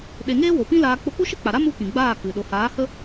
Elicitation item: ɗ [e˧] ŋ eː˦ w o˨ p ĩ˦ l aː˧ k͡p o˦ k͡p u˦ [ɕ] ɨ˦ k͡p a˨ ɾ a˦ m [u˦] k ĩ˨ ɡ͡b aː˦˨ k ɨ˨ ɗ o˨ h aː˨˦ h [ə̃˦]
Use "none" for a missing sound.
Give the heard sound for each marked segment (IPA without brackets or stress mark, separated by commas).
e˧, ʃ, u˦, ə˦